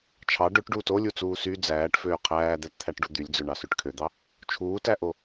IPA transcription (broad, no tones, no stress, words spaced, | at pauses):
t͡ʃʰɑ ɖøʈɖuːt olʲut͡suː sy d͡zæːʈføː qʰæːd̪ætt̪ʰæʈɖu d̪ylʲd͡zøɳɑsøʈ kʰød̪ɑ | t͡ʃʰuːtæʔo